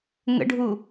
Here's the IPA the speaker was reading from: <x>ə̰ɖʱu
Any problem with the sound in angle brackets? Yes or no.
yes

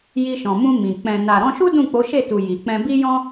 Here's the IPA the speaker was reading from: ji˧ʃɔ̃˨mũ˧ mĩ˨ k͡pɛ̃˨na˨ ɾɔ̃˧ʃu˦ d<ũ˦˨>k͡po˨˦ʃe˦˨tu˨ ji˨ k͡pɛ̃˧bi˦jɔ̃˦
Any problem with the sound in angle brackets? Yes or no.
no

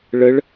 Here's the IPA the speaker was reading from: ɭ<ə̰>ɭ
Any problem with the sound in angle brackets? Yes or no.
yes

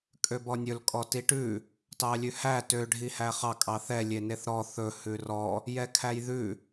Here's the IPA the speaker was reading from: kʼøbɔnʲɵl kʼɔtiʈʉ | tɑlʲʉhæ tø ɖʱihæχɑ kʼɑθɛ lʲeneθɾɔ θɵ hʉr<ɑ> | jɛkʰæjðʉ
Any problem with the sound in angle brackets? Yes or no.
yes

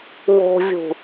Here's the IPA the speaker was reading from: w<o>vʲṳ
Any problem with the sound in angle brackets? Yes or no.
yes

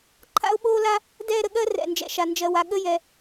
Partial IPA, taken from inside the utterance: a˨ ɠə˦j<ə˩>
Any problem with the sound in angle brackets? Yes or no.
yes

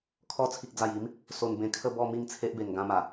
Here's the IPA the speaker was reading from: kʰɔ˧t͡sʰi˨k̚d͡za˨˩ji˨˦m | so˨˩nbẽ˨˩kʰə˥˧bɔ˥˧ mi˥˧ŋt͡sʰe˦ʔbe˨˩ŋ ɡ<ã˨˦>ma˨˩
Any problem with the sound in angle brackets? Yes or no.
yes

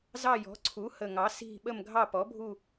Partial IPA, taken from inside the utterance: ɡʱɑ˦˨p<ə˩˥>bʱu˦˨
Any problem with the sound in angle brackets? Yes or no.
yes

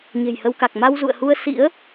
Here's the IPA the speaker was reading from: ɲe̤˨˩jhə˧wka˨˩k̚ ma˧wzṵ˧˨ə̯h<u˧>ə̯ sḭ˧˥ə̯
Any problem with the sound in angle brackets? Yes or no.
no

